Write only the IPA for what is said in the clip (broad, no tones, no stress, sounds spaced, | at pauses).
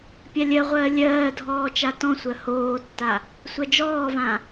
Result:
pʲ a lʲ ɜ ʁʷ ɜː lʲ ɜː dʱ ɔː t͡ʃ a t ɔ̃ sʷ ɜ h oː tː a | sʷ ɜ d͡ʒ ɔː v ã